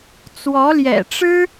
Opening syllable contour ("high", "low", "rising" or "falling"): rising